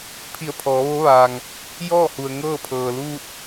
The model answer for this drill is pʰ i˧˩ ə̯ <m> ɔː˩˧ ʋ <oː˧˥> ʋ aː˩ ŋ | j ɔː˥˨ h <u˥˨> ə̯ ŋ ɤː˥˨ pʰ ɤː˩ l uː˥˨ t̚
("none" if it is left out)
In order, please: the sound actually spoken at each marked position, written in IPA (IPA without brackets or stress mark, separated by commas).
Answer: pʰ, o˧˥, u˩